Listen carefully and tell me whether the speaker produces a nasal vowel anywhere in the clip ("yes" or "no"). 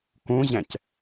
yes